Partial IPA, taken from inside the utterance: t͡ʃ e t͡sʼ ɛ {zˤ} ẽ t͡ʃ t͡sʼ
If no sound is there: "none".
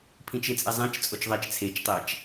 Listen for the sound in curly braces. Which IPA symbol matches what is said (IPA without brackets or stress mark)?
zˤ